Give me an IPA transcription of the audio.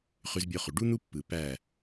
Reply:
χ y˧ z bʲ o˧ χ y˨ ɖ u˦ n̪ u˦ pː ɯ˨ p æ˦˨

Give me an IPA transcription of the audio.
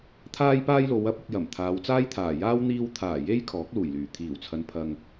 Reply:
t̪ʰ aː˥ j p aː˥ j l o˨˧ w ɐ˥ p̚ ʊ˧ k̚ j ɐ˨˩ m t̪ʰ aː˨˧ w t͡s aː˥ j t̪ʰ aː˨˩ j aː˥ w n̪ iː˧ w t̪ʰ aː˨˩ j e˥ j kʰ ɔː˨˥ k̚ l uː˨˩ j l yː˨˩ t̪ʰ iː˨˩ w t͡sʰ ɐ˨˧ n pʰ ɐ˨ ŋ

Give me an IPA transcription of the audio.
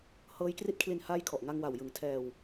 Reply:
h ɤː˦˥ j k r i˦˥ t̚ kʰ l i˧ n h aː˦˥ j kʰ ɔ˨˩ ʔ ŋ a˧ ŋ w a˨˩ w j ɯ˨˩ ŋ tʰ ɛː˧ w

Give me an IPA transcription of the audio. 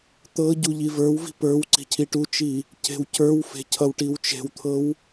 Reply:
t̪ ɤ ɟ u ʎ i v ə˞ w v i̤ p ə˞ w ǀ i̤ cʰ i ʈ u t͡ʃ i | c e̤ w c ə˞ w f e̤ cʰ ʌ w ʈ i w t͡ʃ e̤ w t̪ʰ ɤ w

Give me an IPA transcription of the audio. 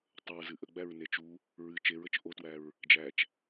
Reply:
tˤ ə ɹ z ɨ ʔ ə ɡ͡b æ ɹ n e t͡ʃ u | ɹ ɨ t͡ʃ e ɹ ə t͡ʃ ʔ o t w æ ɹ | d͡ʒ æ t͡ʃ

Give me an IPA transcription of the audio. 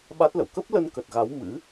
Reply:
ɓ a˦˥ t̚ l ə̰˧˨ w k ə˦˥ p̚ l ə˧ n k ə˨˩ t̚ ɣ a˨˦ w m ɨ̰˧˥

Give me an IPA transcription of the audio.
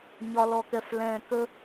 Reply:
ɲ ɒ˧ l ɔ˧ k ɛ˧ f l ɛ̃ː˧ k ə˦

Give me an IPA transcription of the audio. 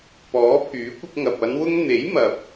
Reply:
p ɔː˨˥ pʰ yː˨˥ kʷ ɪ˧ k̚ ŋ ɐ˨ p̚ ɐ˨˧ n w ʊ˧ ŋ n̪ e˨˥ j m ɐ˨ p̚

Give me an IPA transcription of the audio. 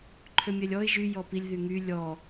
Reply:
ǃʰ ø mʲ ɛ lʲ ɔ ɪ̯ ʒ y j ɔ p i lʲ ð y ŋ y lʲ ɔ

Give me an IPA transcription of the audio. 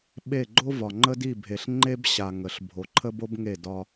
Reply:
ɓ e˦˨ ɡ͡ǃ o˦ v ɒ˨ ŋ͡ǃ ə˦ d i˦˨ bʱ e˨ ɬ ŋ͡ǃ e˦ b ɕ a˨ ŋ ə˨ ɬ bʱ o˨ ǃʰ ə˦ b o˦ b ŋ e˦˨ d ɒ˦

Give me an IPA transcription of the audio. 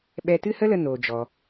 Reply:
ɓ ɛ˧ t ɨ˦ h ə˦ l ə˧ n oː˧ d͡ʒ ɔ˧

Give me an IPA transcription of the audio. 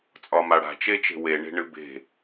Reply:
t͡sʼ ɒ m a ɽ a̤ t͡ʃ e t͡ʃ e̤ w e ɳ e̤ ɳ ɨ b e̤

